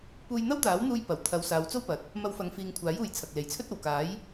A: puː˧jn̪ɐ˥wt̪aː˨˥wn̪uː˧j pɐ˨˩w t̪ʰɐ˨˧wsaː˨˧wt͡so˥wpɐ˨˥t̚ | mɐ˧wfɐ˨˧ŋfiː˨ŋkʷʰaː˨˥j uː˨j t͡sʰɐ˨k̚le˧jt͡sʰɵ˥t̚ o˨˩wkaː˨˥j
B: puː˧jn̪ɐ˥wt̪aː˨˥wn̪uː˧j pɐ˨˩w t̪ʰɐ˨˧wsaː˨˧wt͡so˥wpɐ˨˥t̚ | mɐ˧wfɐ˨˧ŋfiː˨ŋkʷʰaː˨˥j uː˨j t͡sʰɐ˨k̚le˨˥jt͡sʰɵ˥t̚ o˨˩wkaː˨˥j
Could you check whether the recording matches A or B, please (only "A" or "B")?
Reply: B